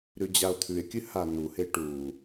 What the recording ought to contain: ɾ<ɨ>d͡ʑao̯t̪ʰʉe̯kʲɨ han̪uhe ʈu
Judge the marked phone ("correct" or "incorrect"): incorrect